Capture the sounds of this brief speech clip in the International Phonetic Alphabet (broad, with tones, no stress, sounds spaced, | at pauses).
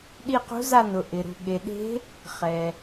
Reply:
ɗ i˦˨ q ṳ˧˥ z a˦˨ n ʊ˩ ʔ ɪ˩ ɾ ṳ˩ ɠ e˩ ɗ e̤˧˥ | χ ɛ˩